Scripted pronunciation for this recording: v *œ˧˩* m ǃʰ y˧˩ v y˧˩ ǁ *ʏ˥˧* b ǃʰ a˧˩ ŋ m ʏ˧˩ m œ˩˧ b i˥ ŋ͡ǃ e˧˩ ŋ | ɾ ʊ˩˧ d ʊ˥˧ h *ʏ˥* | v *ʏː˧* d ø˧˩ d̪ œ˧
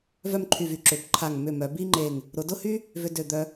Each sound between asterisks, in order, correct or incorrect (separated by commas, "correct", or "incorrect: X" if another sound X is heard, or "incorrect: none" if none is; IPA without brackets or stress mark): incorrect: œ˥˧, incorrect: ʏ˩˧, incorrect: y˥, incorrect: ʏ˧